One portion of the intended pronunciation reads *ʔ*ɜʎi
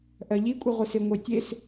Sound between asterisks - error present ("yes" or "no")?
no